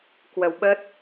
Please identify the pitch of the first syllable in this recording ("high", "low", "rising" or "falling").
low